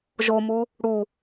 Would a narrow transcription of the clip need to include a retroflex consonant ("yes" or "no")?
yes